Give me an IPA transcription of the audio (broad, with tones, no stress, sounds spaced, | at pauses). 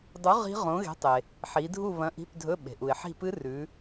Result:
dˤ u˨˥ ʁ i̤˦˥ ʁ õ˨˥ ɣ e̤˨˥ tˤ e˩ | ħ i˩˧ dʱ u˦˨ β ɐ̃˨˥ ʔ i̤˧˥˧ p dʱ ɵ˧˥˧ ɓ e̤˩ ʔ u˩ ɪ̯ ħ i̤˦˨ p ɨ˦˥ r ʉ˩˧